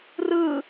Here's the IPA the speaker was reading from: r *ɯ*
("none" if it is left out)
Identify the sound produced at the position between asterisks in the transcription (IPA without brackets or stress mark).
ɯ